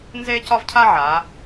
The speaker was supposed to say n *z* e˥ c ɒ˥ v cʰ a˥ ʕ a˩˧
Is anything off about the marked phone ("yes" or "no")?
no